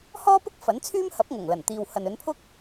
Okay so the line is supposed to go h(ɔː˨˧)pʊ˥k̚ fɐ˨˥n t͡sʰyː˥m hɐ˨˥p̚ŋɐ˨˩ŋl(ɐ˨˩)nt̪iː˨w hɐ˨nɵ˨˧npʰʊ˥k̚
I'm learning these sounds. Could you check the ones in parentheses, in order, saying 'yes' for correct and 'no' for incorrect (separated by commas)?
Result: no, yes